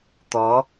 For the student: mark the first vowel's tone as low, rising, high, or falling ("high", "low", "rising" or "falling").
rising